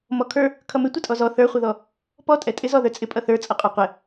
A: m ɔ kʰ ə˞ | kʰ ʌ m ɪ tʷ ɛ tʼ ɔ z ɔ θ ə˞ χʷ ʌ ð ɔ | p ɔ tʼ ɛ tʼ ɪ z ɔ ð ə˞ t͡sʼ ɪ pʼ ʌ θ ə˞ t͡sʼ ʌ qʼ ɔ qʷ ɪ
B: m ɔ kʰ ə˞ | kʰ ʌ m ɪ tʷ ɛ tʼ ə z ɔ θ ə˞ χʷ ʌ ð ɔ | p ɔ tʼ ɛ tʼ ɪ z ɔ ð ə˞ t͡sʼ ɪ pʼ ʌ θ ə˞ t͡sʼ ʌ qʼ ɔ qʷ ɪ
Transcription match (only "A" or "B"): A